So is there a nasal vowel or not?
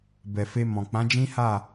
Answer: yes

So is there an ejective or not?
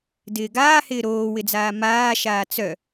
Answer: no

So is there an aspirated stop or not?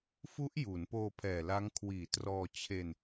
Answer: yes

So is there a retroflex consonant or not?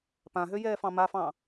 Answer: no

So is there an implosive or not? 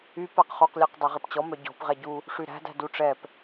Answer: no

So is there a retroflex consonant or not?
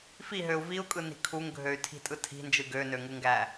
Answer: no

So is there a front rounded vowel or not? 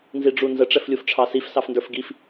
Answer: no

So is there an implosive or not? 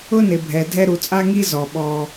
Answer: yes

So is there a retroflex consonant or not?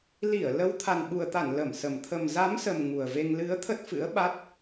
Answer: no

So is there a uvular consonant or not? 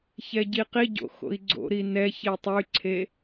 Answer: yes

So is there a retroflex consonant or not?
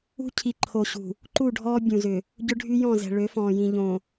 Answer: yes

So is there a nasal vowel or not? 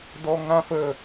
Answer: yes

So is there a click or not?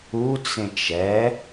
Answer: no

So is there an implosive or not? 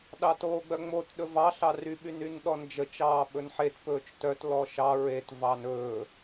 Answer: yes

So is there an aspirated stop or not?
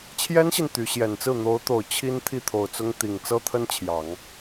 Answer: yes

